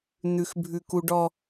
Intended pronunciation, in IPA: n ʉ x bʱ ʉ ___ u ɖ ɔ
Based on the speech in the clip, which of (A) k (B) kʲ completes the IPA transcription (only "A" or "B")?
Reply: A